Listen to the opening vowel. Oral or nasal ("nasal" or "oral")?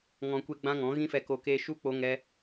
nasal